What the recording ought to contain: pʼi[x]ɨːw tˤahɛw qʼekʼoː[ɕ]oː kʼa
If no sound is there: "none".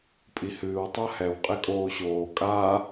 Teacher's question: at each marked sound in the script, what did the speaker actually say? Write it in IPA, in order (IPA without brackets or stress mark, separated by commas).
h, ɕ